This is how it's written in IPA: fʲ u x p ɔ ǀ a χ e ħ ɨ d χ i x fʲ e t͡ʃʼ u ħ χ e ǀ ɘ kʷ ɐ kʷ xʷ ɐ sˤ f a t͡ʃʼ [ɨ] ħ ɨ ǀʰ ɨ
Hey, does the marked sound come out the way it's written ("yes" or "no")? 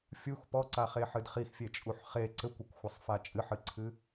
yes